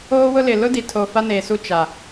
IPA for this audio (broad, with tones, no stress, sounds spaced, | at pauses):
oː˦ w ʊ˦ l ɪ˨ l ʊ˦ d i˨ tʰ o˨ f a˦ n eː˨ s u˦˨ t͡ʃ a˨